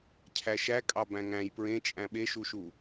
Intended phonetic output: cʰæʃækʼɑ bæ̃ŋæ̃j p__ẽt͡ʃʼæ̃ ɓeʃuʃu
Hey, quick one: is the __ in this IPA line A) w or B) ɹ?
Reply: B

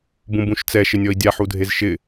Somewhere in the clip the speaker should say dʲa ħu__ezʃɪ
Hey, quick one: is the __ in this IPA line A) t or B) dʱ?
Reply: B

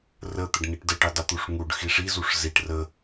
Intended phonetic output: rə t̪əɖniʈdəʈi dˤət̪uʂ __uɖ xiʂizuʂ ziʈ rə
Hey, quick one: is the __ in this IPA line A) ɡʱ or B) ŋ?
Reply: B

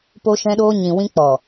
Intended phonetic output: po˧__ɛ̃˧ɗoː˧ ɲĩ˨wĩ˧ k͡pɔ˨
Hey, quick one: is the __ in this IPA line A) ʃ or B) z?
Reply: A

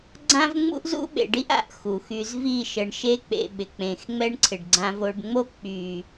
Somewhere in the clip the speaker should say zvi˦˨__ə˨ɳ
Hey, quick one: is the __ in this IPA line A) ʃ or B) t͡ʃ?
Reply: A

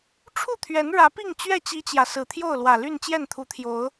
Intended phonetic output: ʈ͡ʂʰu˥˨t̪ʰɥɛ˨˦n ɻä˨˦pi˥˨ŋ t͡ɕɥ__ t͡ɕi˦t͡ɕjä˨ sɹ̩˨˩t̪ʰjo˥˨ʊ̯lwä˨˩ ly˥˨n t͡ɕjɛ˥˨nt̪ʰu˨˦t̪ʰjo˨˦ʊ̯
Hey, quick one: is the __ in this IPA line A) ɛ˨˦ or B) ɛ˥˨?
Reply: B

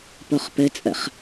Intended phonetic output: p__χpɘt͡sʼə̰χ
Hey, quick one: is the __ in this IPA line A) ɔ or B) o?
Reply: B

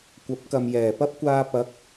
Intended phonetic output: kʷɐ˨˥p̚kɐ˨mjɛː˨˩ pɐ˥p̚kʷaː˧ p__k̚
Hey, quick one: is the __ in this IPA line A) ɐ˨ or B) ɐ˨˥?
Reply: B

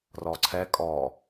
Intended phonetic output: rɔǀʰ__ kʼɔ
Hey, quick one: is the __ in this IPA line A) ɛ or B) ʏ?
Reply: A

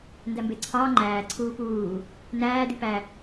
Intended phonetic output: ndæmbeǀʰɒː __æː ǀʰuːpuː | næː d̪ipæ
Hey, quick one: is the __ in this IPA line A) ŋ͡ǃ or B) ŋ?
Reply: A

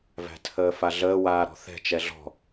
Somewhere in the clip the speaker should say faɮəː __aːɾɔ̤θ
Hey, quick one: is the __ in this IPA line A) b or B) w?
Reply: B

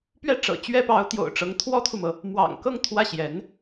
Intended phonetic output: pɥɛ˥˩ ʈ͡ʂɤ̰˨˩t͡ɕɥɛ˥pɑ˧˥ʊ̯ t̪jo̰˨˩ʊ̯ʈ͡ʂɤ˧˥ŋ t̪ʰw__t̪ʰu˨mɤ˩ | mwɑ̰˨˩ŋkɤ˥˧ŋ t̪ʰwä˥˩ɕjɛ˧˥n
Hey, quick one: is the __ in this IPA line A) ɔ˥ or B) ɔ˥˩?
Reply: A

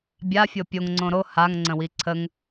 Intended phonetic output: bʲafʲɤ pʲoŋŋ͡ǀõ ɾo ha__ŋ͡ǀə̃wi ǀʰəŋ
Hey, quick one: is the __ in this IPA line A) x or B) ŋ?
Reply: B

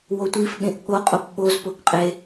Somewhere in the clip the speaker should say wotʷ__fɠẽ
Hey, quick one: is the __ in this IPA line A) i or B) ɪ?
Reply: A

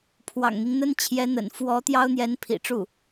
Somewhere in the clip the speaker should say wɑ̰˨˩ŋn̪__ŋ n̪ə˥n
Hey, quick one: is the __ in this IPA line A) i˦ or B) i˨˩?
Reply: A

